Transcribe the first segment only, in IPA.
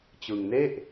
t͡ɕ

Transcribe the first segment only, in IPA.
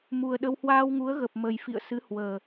m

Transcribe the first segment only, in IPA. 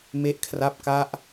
m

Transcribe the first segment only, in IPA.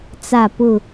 t͡s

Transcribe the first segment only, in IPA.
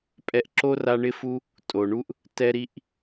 pʼ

